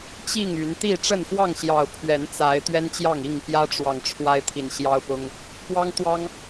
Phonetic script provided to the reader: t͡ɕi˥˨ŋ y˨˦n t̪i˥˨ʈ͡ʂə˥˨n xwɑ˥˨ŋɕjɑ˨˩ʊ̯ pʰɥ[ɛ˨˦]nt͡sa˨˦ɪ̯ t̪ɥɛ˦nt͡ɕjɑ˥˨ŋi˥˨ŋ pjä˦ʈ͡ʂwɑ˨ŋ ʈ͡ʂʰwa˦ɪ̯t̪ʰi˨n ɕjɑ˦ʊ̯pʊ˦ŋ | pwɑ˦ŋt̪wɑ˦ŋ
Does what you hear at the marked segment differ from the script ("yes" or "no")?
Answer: no